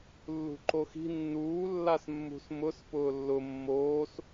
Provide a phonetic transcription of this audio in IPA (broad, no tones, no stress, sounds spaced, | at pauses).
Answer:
lː ṳ ǃ o x i̤ nː uː lː a s mː ṳ s m ʊ s p ʊː lː ʊ mː oː s